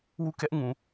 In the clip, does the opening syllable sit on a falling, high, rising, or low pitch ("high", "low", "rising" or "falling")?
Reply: falling